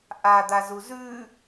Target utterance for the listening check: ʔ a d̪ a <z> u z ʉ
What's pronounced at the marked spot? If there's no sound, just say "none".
z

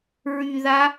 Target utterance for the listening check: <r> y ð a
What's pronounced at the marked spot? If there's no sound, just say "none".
ɹ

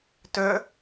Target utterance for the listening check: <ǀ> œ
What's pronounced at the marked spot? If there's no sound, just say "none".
t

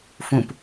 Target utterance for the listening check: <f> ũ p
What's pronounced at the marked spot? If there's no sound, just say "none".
f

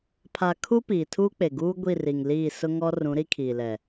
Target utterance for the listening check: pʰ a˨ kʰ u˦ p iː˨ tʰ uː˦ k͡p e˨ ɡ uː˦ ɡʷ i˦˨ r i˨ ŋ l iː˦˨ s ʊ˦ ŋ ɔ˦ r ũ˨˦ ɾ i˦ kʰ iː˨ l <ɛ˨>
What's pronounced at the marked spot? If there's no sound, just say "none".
ɛ˨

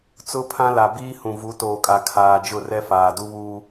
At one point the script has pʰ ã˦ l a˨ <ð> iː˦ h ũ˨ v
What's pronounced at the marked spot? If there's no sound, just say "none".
b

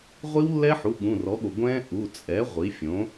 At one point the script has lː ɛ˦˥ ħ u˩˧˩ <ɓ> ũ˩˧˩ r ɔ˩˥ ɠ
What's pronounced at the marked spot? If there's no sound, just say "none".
ɠ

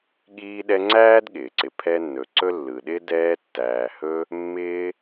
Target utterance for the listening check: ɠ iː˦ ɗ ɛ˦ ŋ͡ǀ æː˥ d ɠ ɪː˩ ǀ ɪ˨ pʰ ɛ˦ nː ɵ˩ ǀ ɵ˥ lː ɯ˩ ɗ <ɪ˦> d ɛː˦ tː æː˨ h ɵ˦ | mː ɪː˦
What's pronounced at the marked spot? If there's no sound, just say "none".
ɪ˦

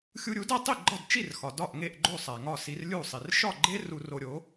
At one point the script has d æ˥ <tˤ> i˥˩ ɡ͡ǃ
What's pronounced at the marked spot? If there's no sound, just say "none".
tˤ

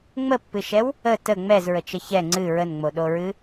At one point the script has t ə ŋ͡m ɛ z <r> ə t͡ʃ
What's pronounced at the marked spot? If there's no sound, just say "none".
ɹ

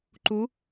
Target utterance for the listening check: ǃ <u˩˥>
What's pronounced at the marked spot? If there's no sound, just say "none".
u˩˥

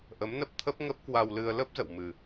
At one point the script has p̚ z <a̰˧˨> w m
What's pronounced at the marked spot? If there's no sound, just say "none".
ə̰˧˨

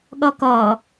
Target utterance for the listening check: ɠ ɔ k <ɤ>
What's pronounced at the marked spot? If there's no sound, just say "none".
ɔ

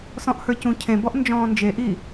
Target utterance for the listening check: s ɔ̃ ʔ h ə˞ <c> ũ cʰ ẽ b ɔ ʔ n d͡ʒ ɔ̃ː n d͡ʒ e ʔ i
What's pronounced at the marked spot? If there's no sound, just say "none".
c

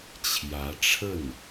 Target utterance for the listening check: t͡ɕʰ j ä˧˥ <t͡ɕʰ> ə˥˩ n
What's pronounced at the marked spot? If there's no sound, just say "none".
ʈ͡ʂʰ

